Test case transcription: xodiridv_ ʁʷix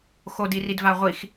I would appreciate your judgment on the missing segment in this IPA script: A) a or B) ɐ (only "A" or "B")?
A